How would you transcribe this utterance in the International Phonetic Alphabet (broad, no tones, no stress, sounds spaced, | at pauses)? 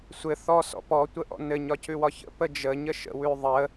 sʷ ɘ θ ɔ s ɔ̰ p ɔ tʷ ə ʔ ɔ̰ n ɘ ɲ ɒ c ʉ w ɒ ç ə̰ p ə d͡ʒ ə ɲ ə ʃ ə̰ w ʉ ðˤ ə